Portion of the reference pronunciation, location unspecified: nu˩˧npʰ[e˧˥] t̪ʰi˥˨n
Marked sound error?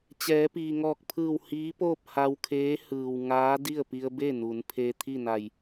yes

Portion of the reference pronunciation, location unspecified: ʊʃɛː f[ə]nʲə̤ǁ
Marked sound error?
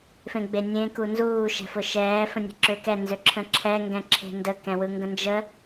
yes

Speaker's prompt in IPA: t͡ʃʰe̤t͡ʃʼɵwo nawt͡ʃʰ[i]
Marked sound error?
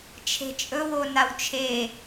yes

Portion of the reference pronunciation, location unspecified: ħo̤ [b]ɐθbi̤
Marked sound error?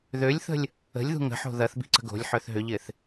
yes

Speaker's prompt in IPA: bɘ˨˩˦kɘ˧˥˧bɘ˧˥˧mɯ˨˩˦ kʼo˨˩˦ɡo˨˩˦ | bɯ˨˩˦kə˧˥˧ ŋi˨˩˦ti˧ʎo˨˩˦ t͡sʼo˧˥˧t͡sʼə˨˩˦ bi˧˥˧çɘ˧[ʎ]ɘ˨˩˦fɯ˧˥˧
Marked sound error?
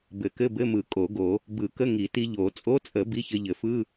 no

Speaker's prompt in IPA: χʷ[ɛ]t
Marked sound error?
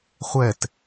no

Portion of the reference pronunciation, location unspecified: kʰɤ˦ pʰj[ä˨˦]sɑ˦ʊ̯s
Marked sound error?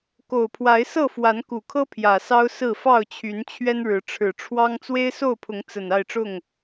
yes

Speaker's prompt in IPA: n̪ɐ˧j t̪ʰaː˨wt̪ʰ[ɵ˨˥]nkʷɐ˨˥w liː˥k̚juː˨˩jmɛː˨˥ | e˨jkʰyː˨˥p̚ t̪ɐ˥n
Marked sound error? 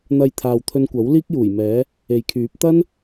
yes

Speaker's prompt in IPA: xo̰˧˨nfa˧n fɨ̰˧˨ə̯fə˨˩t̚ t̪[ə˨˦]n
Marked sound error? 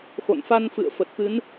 yes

